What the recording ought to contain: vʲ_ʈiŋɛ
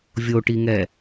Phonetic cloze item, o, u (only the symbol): o